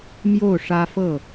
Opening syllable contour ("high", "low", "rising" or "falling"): falling